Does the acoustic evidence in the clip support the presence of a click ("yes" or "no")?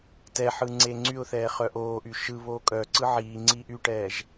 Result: yes